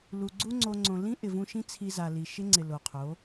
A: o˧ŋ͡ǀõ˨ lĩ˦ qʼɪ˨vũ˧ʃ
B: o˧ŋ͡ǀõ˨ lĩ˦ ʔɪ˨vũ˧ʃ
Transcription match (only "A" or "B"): B